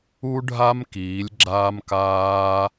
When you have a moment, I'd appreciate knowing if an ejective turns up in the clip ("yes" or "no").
no